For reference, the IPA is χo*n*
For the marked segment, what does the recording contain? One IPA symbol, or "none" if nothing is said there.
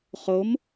m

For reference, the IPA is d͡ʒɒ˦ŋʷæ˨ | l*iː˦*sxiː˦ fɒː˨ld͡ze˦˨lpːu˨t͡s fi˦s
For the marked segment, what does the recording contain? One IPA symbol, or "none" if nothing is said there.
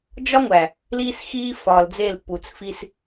iː˦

